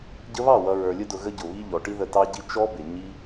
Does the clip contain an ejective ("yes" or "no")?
no